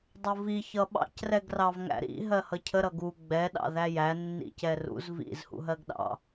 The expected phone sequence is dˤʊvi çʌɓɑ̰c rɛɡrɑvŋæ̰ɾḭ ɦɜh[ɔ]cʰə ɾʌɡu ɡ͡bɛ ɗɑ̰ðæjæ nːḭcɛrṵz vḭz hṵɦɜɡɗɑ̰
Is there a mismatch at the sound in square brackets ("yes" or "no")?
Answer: yes